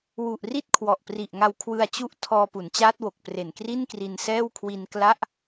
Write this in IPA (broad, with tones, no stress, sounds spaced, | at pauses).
w u˨˩ ʔ r i˥˩ t̚ kʰ w ɔ˨˩ ʔ p r i˨˩ ʔ ŋ a˧ w kʰ w ɯ˧ a̯ t͡ɕ u˦˥ ʔ tʰ ɔː˧ p u˩˦ n t͡ɕ aː˦˥ t̚ w o˨˩ k̚ p r e˨˩ n k r i˥˩ n k r i˧ n s ɛː˥˩ w kʰ w i˧ n k l a˥˩ ʔ